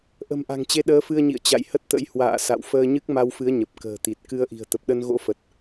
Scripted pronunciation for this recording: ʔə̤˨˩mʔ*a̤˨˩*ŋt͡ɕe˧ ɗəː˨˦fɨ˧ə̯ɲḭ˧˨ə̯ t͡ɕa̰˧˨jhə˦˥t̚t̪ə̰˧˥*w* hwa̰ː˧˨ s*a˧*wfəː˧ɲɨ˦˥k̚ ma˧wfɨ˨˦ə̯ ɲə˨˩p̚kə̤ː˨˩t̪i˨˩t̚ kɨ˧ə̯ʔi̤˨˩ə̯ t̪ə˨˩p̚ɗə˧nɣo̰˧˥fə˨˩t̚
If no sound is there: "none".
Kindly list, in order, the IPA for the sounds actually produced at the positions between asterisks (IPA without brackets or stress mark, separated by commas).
a̤˨˩, j, a̰˧˨